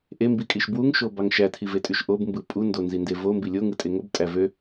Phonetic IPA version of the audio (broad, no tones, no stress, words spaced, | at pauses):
ʔembikʼiʃ bwuŋʃobɑŋ ʃætʰivetʼyʃ ʔobmbɯ pʼundonzinde vombi lʲoŋɯtʼe ŋobtʼæ vø